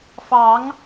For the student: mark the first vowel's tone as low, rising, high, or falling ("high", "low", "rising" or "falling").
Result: rising